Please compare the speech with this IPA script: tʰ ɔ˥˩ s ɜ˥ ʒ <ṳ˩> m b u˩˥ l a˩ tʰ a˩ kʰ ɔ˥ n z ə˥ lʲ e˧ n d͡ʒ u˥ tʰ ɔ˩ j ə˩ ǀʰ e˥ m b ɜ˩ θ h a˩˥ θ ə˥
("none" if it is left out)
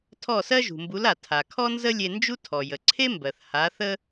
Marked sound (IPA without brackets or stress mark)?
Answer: ṳ˩